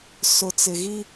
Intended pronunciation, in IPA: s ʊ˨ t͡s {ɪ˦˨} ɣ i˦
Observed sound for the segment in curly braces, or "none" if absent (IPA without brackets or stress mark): ɪ˨